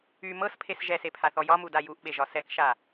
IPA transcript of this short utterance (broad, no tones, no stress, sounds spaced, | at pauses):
y m ɤ s pʰ e s ʒ ɛ s e pʰ a θ ɔ j ɒ m u d a j u ʔ ɓ e ʒ ɒ s ɛ k ʃ a